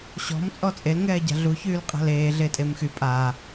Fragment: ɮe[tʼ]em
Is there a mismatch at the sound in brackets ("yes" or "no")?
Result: no